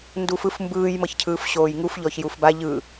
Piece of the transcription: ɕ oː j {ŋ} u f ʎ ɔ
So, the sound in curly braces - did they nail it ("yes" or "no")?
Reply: yes